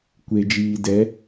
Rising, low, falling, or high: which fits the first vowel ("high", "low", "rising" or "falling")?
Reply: low